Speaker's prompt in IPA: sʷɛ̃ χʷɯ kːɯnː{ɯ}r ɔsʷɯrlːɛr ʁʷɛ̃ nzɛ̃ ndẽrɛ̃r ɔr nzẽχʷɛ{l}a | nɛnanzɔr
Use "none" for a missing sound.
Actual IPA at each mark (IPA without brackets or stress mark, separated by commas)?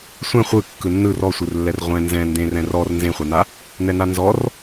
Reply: ɯ, n